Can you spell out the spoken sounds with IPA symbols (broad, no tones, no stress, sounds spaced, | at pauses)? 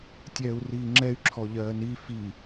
tʲ ɛː u̯ r iː ŋ͡ǁ ɛ y̯ ǁʰ ɔ ʎ ɜː n i f i